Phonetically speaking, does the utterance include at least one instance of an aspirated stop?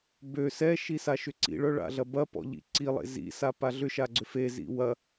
no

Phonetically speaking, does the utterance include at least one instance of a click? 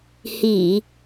no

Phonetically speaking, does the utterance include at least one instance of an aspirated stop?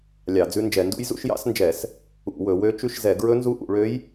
no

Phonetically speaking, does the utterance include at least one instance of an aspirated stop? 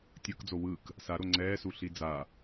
no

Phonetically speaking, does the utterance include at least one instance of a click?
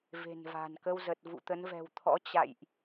no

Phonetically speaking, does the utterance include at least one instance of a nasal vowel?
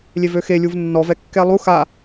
no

